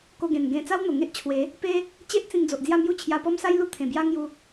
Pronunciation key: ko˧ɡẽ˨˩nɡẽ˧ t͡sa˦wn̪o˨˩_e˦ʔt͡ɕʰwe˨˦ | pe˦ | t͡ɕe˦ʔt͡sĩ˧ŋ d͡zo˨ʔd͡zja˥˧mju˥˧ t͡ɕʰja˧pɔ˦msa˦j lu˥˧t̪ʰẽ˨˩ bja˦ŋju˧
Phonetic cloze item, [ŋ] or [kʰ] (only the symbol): ŋ